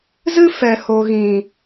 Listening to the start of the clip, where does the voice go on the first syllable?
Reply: high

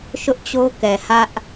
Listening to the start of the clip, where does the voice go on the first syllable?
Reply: high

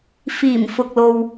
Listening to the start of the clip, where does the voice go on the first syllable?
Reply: low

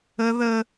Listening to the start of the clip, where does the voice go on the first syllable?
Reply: high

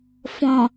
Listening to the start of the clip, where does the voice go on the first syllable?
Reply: low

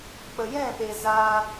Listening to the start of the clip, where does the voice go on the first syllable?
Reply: low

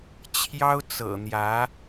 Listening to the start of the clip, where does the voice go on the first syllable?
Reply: high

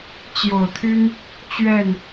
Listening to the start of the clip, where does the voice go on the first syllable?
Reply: low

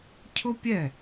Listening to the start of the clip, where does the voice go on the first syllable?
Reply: high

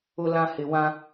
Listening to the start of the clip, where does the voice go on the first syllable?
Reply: high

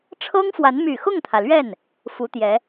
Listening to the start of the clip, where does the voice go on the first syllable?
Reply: high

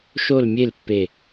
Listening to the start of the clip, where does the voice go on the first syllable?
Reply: falling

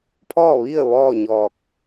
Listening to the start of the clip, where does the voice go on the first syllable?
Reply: falling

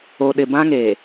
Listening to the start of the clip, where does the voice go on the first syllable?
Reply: low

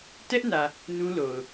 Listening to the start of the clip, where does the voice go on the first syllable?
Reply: high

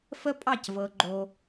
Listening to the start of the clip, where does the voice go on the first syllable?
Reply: high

